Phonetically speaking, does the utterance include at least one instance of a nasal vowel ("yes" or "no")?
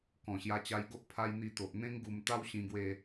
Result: yes